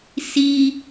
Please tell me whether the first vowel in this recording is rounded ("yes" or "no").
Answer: no